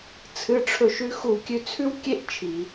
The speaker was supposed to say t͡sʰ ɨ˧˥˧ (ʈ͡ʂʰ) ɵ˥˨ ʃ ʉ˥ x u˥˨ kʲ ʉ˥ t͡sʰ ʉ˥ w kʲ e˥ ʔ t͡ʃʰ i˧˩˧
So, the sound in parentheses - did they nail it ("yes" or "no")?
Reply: yes